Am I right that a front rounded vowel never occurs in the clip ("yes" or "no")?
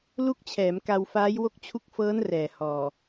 yes